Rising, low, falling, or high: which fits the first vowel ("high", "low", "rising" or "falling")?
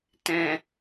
low